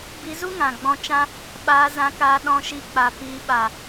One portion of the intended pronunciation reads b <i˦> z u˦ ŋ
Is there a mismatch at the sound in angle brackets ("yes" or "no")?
yes